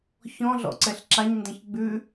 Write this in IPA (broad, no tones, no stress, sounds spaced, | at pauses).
ç ɔ̃ ɮ ɔ̰ ǀ ɛ ɬ ǁ a ɲ n d ɛ̃ ç ɡ͡b ʉ